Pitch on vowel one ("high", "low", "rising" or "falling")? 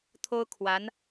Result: high